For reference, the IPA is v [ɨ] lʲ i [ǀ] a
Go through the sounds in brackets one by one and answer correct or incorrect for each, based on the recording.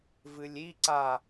correct, correct

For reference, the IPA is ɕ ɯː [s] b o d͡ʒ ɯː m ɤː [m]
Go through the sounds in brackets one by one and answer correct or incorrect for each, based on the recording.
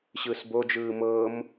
correct, correct

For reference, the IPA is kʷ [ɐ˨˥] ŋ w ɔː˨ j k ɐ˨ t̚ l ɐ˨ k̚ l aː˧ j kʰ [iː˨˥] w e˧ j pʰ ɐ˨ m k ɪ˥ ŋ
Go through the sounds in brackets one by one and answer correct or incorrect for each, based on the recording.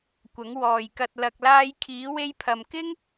correct, correct

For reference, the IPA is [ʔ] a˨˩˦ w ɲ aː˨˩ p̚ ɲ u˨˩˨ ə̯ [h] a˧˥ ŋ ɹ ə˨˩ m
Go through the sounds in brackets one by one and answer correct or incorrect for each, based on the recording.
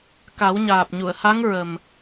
incorrect: k, correct

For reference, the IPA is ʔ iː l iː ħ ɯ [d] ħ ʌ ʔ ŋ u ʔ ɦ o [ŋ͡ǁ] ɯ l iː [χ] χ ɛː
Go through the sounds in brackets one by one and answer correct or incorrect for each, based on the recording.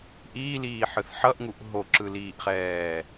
incorrect: θ, incorrect: ǁ, incorrect: ʔ

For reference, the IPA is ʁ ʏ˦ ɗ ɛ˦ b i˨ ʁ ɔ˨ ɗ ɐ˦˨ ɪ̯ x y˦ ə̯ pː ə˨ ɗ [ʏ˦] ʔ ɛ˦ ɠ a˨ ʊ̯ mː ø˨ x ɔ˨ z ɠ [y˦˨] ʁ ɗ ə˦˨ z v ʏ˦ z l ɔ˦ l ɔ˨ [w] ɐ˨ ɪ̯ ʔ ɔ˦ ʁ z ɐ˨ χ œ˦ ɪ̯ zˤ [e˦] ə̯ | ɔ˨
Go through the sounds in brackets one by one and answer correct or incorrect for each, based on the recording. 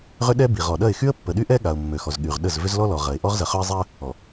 incorrect: y˦, incorrect: y˨, incorrect: ʁ, incorrect: i˦

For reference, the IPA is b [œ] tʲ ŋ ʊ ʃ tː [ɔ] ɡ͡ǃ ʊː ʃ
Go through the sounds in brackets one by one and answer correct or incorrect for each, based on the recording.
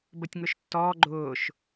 incorrect: ə, incorrect: ɔː

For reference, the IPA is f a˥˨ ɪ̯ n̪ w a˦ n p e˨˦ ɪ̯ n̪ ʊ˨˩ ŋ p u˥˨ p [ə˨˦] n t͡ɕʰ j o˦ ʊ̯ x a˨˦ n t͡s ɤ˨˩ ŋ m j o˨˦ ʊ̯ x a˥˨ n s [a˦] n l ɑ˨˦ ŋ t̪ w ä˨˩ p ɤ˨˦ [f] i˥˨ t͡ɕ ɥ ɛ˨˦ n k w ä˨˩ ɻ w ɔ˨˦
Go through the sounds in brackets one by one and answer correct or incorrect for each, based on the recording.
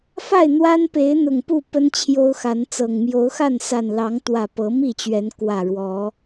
incorrect: ə˦, incorrect: a˨˩, incorrect: m

